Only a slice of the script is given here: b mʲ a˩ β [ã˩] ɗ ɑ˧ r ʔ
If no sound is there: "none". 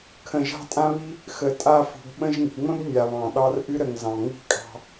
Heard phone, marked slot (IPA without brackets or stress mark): ɑ̃˩